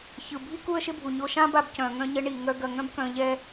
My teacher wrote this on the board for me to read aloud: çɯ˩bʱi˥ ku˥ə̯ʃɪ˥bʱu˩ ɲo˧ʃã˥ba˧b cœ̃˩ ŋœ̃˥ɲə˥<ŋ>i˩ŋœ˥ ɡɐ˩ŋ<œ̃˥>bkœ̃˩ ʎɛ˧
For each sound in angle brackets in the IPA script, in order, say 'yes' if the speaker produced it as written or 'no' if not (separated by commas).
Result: no, yes